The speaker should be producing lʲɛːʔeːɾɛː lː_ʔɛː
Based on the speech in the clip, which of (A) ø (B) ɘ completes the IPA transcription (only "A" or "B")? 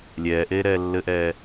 B